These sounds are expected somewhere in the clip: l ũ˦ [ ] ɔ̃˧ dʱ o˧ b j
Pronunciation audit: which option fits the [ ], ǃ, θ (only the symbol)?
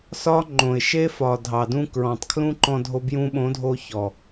ǃ